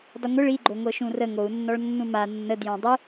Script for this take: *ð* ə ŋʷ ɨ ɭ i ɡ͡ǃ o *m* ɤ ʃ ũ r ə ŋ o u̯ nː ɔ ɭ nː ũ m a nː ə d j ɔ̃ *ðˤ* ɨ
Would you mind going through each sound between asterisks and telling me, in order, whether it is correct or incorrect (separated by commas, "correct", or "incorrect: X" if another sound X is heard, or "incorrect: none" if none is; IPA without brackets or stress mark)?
incorrect: dˤ, incorrect: ŋʷ, incorrect: dˤ